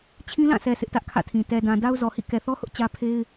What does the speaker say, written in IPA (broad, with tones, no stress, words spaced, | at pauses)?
t͡ɕʰĩ˦lã˦˨sɛ˨ sʰɪ˦ʔtä˦ʔkʰä̰˦˨tʰĩ˨ tɛ˨dã˨ da˦ʊ̯zɔ˨hḭ˦˨ kɛ˨θɔ˦hʊ˦ʔ t͡ɕä˦ pʰe˦ɪ̯